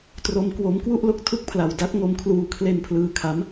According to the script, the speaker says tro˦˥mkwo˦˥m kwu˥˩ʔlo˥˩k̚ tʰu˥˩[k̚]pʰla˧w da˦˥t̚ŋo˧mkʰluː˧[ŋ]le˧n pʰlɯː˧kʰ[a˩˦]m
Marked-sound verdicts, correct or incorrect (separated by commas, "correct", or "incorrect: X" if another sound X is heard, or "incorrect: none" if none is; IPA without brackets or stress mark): correct, incorrect: kʰ, incorrect: a˦˥